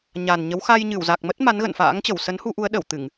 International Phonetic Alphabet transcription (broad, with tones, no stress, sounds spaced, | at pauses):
ɲ a˨˩ n ɲ ə˨˦ w x a˧ j ɲ ɨ˧˩ w z a˨˩ k̚ m ə˦˥ t̚ m a˨˦ n ɣ ə̰˧˨ n f a̰ː˧˥ ŋ t͡ɕ ə˧˩ w s ə˨˦ n h u˧ ʔ u˨˦ ə̯ ɗ ə˧˩ w t̪ ɨ˧˩˨ ŋ